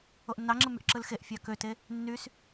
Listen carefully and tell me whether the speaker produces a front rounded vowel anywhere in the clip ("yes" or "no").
yes